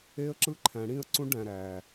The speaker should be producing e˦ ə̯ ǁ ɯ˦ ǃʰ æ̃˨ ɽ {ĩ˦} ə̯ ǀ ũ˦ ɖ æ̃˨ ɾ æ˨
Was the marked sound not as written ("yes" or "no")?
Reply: no